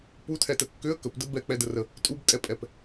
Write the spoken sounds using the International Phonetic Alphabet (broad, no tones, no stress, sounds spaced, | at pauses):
p u tʰ ɛ t ə kː ʏ ə̯ k ə p d ə b ɛ k͡p ɛ d ə r ə | tʼ u b tʼ ɛ pʼ ɛ p